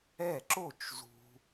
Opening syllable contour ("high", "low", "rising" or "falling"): falling